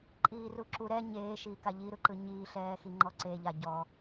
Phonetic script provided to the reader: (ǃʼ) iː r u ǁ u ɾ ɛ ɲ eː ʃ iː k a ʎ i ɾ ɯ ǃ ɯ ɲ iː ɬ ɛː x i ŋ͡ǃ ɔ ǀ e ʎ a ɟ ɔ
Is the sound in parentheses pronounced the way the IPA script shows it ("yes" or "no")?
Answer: yes